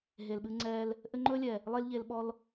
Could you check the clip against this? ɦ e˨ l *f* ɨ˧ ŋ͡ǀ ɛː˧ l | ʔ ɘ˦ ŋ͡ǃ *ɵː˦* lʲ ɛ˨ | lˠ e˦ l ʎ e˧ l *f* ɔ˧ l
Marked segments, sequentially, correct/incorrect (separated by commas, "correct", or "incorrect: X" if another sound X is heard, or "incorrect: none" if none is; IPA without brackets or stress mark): incorrect: ɓ, correct, incorrect: ɓ